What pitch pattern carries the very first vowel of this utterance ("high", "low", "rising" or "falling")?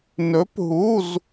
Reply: rising